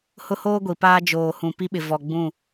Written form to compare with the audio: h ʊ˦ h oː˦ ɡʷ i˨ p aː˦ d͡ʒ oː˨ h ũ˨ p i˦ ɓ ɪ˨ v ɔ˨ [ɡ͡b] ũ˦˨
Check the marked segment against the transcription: correct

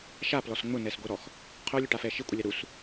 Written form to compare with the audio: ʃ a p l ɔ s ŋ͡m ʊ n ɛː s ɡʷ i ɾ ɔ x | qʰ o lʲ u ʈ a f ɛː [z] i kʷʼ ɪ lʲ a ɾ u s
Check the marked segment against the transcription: incorrect: ʃ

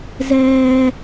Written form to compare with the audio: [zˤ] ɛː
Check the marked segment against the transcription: incorrect: z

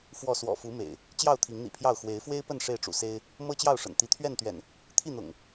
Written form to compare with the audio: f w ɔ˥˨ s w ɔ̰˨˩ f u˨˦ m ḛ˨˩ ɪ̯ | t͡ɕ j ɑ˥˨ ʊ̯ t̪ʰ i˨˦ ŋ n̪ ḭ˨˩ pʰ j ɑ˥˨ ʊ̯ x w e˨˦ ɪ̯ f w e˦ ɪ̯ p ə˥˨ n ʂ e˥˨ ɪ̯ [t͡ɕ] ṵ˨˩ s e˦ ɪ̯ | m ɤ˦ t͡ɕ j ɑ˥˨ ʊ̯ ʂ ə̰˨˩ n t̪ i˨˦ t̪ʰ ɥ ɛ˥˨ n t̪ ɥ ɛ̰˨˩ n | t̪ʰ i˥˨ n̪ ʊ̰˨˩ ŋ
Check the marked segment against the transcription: incorrect: ʈ͡ʂ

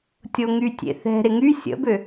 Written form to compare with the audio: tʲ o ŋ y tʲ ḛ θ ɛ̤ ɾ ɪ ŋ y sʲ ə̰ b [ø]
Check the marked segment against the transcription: correct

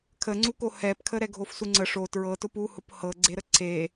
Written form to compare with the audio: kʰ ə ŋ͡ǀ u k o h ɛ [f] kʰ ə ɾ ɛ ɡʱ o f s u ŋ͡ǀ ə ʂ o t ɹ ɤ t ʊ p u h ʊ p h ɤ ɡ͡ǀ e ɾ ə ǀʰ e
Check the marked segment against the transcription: incorrect: p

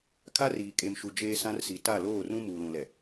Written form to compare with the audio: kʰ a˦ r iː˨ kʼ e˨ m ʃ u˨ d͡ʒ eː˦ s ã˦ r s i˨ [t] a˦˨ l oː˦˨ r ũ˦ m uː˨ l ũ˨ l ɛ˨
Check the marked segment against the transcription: correct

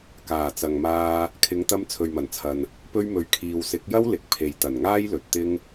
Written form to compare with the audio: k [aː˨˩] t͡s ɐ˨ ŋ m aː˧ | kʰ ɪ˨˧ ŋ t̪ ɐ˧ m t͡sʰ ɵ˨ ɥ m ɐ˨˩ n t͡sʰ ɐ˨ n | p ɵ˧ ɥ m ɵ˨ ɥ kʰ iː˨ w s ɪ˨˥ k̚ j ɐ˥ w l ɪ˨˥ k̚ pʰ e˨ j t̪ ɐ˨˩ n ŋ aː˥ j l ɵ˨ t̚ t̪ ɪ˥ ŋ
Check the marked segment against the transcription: correct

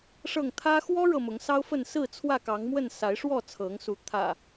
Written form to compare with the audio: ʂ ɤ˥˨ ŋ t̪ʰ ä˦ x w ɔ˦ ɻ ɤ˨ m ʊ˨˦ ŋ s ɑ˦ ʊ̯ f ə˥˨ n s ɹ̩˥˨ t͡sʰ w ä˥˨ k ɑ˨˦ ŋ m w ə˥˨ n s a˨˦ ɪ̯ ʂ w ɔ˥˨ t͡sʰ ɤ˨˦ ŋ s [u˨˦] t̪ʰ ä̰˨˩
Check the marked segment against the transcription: correct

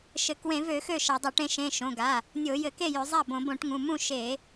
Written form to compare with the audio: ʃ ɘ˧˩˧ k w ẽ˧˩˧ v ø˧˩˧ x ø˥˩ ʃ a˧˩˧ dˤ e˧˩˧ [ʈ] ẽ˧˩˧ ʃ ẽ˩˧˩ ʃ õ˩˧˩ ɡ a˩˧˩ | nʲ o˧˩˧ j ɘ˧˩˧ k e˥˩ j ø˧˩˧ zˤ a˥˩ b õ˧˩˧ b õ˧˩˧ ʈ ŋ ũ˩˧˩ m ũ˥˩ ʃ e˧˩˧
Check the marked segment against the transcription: correct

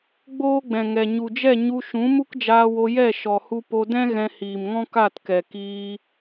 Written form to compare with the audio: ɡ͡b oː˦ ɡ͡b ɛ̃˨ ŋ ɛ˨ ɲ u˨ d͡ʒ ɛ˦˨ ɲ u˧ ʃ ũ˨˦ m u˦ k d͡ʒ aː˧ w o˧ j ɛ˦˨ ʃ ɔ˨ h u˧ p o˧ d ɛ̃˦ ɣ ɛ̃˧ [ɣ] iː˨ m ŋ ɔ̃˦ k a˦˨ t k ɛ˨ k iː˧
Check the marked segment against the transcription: incorrect: h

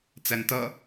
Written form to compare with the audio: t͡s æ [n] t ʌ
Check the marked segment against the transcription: correct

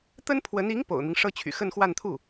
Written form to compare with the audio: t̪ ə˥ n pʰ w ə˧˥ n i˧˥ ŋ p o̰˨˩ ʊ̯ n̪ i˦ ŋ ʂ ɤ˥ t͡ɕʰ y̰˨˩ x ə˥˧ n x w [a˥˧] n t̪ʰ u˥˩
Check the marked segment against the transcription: correct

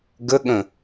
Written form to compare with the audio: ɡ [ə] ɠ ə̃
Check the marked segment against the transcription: correct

